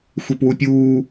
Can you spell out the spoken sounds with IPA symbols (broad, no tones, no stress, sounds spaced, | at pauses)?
xʷ e p w u pʲ uː